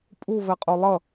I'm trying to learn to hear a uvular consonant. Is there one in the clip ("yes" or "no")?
yes